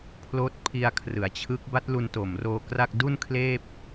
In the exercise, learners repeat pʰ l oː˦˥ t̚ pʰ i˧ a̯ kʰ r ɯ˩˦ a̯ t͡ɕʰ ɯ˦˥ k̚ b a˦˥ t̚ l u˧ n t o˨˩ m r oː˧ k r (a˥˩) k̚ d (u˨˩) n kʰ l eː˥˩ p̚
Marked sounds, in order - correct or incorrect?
correct, incorrect

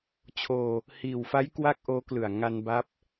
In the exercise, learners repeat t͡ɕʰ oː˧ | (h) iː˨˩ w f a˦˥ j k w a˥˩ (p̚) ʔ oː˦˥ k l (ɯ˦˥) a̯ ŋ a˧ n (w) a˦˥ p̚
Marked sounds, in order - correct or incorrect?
correct, incorrect, incorrect, incorrect

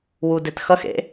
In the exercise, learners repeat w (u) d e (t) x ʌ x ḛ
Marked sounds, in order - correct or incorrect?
correct, correct

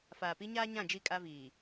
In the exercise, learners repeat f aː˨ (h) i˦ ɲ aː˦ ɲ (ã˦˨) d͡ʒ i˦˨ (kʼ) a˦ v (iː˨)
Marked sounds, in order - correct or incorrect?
incorrect, correct, correct, correct

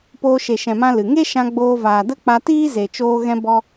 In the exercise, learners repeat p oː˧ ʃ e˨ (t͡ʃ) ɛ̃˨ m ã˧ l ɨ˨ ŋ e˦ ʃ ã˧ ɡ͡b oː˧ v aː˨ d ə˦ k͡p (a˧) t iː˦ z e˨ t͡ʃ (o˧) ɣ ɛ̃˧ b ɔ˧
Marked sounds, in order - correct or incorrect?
incorrect, correct, incorrect

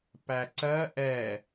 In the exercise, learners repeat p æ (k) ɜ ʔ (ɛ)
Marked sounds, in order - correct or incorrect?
incorrect, correct

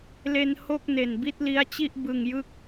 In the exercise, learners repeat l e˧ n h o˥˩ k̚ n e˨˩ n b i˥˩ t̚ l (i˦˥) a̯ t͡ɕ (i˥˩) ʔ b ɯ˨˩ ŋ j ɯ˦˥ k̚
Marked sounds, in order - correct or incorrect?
correct, correct

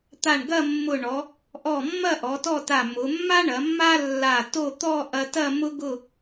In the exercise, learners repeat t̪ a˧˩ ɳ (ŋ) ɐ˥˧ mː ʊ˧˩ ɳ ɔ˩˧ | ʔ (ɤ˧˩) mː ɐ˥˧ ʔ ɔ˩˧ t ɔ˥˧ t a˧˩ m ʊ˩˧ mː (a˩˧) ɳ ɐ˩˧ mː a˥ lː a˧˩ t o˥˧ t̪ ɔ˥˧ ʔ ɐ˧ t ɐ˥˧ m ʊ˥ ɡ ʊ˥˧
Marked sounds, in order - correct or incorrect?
incorrect, incorrect, incorrect

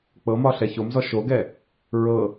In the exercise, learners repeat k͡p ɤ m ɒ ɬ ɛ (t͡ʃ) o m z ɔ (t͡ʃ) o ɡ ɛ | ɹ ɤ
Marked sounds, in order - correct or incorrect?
incorrect, incorrect

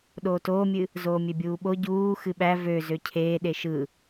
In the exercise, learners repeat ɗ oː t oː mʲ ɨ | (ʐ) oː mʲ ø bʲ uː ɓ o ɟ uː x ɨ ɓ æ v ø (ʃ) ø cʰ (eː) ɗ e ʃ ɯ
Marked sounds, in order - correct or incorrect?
incorrect, incorrect, correct

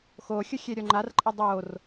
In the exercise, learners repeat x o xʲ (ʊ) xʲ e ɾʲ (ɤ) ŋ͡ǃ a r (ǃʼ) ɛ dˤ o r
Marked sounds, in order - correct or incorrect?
correct, incorrect, correct

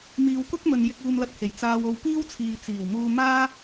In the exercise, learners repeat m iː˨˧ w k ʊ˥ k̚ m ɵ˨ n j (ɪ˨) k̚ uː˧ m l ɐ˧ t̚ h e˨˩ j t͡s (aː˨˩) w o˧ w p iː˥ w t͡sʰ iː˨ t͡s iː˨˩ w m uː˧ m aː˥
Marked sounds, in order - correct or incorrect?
incorrect, incorrect

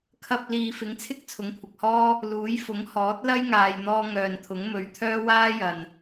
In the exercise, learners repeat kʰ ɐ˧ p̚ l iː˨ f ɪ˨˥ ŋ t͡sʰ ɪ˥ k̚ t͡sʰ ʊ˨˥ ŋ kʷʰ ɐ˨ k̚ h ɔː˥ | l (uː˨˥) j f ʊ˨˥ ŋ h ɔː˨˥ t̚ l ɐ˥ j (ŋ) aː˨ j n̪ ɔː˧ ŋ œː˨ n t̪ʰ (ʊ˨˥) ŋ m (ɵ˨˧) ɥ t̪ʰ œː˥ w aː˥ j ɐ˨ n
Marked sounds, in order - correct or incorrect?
correct, correct, correct, correct

